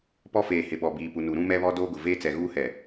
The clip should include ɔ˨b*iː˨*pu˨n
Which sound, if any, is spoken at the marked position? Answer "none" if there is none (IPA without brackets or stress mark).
iː˨